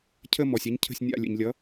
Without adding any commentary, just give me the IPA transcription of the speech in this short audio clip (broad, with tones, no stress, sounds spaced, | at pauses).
cʰ ə˥˧ m ɔ˩ sʲ a˧˥ ɲ cʰ ə̤˥˩ sʲ nʲ a̰˥˩ lʲ ə̰˩ ɲ lʲ ʌ˩˥